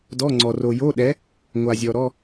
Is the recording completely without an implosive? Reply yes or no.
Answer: no